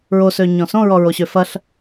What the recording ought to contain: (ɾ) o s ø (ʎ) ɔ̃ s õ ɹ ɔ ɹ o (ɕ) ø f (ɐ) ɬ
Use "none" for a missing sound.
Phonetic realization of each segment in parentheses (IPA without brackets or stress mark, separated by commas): ɹ, ɲ, ɕ, ɐ